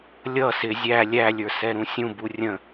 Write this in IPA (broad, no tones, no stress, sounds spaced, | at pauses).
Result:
lʲ ʌ s ɪ zʲ æ lʲ æ lʲ ə˞ s ɛ ɾ ũ sʲ ũ b u rʲ ə̃